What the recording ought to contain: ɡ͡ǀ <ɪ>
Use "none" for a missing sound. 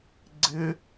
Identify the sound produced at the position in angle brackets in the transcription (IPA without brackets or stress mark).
ɪ